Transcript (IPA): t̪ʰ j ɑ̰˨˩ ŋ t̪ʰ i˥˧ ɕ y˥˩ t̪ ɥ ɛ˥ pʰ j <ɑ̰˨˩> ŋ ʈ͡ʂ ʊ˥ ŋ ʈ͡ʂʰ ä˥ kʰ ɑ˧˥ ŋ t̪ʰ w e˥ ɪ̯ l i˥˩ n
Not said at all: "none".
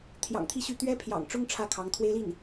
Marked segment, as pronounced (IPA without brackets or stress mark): ɑ̰˨˩